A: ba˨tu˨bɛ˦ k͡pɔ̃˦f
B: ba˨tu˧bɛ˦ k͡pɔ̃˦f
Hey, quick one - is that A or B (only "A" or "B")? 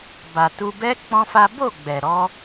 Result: B